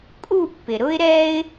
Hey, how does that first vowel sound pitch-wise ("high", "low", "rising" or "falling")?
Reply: falling